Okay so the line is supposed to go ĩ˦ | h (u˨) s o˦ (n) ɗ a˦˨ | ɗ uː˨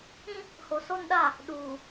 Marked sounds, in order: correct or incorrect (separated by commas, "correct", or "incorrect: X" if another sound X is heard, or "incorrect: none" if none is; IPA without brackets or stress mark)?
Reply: incorrect: o˨, correct